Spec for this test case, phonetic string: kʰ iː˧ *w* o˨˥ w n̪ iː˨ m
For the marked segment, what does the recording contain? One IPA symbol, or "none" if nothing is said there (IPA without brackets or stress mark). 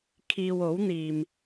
w